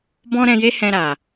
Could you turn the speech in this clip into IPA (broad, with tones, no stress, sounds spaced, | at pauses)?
b ɔ̃˦ ɾ ɛ̃˧ j e˦ h ɛ̃˧ ɾ a˨